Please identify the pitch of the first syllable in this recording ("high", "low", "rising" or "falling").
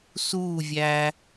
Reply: falling